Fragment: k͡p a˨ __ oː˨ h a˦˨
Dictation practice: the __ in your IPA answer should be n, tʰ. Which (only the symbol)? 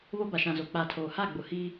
tʰ